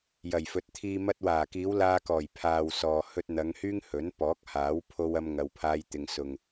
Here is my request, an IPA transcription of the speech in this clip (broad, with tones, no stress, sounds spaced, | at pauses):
j ɐ˨˩ j f ɵ˨˥ t̚ t̪ʰ iː˧ m ɐ˧ t̚ w aː˨˩ k iː˨˧ w l aː˧ k ɔː˨˩ j pʰ aː˨ w s ɔː˨ h ɵ˧ t̚ n̪ ɐ˨˧ ŋ h yː˥ ŋ h ɵ˨˥ n p ɔː˨˥ k̚ h aː˨˥ w pʰ o˧ w ɐ˧ m ŋ ɐ˧ w pʰ aː˥ j t̪ ɪ˧ ŋ s ʊ˨ ŋ